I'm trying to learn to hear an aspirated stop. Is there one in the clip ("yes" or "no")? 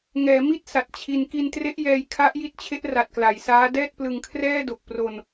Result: yes